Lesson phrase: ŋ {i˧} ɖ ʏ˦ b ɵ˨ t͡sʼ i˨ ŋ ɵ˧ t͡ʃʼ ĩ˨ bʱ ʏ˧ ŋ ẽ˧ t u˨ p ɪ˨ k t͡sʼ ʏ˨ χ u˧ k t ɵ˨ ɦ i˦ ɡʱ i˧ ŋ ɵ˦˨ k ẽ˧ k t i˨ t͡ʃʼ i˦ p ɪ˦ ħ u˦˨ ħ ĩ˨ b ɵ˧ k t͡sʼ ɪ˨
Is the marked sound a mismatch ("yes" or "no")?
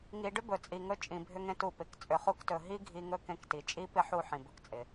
no